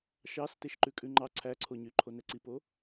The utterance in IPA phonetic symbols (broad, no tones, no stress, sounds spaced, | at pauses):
ʃ ɑ s t e ʃ ǃ ʉ kʼ ʉ ŋ͡ǃ ɑ ǀʰ æ ǀʰ o ɲ y ǃʰ o n ɛ ǀ i p o